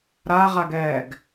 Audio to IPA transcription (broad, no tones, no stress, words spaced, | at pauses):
ɾaʁaɡɛːɡ